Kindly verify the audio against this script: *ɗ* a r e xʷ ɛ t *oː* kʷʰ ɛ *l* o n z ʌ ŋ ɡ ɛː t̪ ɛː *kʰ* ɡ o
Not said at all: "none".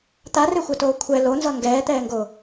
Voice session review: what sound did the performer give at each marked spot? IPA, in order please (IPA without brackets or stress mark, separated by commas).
t̪, oː, l, ŋ